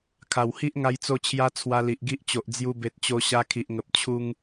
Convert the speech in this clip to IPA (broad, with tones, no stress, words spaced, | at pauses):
kʰa˨˩whi˦ʔ ŋa˧jt͡so˧t͡ɕʰja˧ t͡sʰwa˧li˨ʔɡi˦ʔt͡ɕo˨ʔ d͡zju˧be˨t̚ t͡ɕo˧ɕa˧ kʰi˨ʔŋə˨p̚ t͡ɕʰu˧ŋ